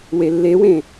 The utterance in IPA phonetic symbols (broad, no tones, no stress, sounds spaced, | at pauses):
w e lː e w ẽ